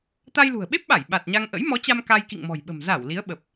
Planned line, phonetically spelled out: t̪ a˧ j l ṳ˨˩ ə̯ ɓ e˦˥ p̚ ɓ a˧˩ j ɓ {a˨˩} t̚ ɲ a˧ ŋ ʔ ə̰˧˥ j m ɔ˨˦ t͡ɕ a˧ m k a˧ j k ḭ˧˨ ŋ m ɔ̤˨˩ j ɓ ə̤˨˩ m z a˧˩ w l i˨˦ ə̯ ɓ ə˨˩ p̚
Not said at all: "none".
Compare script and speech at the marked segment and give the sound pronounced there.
a˨˩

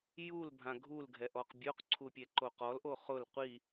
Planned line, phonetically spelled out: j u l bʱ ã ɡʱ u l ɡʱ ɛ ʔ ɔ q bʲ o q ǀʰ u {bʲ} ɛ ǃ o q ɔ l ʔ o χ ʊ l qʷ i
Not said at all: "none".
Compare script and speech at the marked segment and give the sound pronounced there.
pʲ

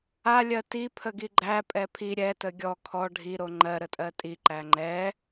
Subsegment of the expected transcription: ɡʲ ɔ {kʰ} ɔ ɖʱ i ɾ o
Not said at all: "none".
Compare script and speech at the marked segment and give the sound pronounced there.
kʰ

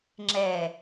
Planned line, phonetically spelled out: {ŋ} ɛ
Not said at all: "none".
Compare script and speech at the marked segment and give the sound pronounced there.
ŋ͡ǁ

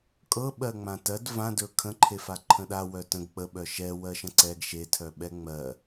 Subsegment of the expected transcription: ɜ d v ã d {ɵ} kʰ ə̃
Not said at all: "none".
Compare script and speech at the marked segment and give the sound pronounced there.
ɵ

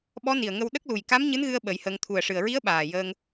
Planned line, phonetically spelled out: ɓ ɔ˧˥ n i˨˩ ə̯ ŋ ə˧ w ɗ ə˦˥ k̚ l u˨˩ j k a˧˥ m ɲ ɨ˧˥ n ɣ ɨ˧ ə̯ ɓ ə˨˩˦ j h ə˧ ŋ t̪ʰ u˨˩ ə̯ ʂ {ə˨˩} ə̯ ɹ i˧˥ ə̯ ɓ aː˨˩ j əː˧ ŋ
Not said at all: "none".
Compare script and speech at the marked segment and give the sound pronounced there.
ɨ˨˩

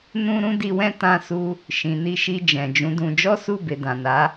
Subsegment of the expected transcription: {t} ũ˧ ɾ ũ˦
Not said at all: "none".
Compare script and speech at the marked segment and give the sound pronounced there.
n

